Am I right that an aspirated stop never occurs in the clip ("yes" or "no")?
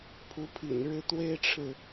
no